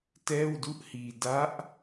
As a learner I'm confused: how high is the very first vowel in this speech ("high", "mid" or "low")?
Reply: mid